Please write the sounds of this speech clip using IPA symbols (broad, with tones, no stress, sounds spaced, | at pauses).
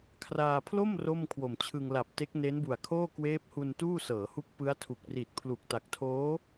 kʰ r aː˧ pʰ l o˥˩ m r o˥˩ m kʰ w o˨˩ m t͡ɕʰ ɯ˧ ŋ l a˨˩ p̚ t e˦˥ k̚ n e˦˥ n b u˨˩ a̯ kʰ oː˥˩ k w eː˦˥ p̚ h u˧ n t uː˥˩ s ɤː˩˦ h u˦˥ k̚ p ɯ˦˥ a̯ tʰ u˨˩ k̚ r i˨˩ t̚ pʰ l u˨˩ k̚ t a˨˩ k̚ tʰ oː˦˥